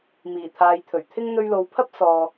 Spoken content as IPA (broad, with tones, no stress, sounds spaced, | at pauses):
m iː˨˩ t̪ʰ aː˨ j t̪ʰ ɵ˨˩ ɥ t̪ʰ ɪ˥ ŋ n̪ ɵ˧ ɥ l o˨˧ w pʰ ɐ˥ p̚ s ɔː˨